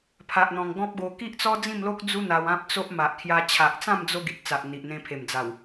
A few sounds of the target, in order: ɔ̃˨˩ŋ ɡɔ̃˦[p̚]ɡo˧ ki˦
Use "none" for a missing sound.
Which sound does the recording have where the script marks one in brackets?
p̚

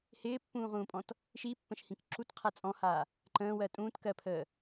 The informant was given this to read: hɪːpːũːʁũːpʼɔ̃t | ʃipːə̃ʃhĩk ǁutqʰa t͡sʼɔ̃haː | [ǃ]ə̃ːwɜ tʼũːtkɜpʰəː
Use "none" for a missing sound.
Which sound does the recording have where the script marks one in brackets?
ǃ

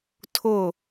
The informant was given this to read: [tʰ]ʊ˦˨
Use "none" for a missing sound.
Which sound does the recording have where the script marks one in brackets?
tʰ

